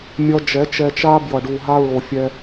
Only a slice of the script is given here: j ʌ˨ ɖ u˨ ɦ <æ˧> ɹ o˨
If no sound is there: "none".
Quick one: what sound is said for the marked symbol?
a˧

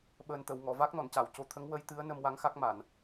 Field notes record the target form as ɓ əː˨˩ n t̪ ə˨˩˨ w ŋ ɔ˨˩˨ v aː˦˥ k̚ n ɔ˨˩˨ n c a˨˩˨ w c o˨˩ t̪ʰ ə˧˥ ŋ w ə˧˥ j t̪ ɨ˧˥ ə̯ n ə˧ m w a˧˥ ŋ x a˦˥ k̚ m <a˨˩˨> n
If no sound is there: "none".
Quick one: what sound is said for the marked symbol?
a˨˩˨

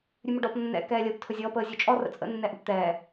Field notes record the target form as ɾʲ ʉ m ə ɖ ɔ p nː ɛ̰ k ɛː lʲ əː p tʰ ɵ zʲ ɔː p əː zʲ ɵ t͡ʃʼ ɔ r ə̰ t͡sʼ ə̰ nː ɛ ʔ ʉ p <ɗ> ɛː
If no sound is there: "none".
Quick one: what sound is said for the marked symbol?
t̪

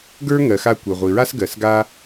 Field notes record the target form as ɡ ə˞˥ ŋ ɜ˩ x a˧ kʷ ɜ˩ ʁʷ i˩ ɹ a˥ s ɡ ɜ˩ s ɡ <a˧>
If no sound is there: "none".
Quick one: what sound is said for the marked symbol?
a˧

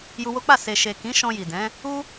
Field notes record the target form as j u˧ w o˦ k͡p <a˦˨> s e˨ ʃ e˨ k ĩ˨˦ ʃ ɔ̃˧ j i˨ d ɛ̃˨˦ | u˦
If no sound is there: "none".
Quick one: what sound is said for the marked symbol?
a˦˨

